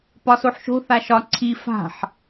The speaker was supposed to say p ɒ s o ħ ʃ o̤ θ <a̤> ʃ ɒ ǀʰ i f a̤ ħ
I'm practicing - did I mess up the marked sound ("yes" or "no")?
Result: yes